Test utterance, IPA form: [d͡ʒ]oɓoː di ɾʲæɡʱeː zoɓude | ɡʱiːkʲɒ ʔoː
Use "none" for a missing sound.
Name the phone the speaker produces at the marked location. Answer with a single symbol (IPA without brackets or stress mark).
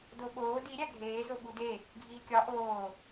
d